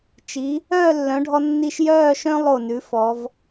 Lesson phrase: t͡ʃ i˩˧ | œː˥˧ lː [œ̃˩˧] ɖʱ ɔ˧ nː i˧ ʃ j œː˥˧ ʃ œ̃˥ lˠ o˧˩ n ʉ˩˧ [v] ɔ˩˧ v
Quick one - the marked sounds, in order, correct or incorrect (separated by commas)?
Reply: correct, incorrect